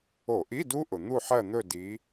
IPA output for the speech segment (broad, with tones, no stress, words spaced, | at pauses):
o˧˩˧ʔi˧˥˧du˦˥ʔʊ˩ n̪u˦˨ħɜ˦˨n̪ɵ˦˨ di˨˦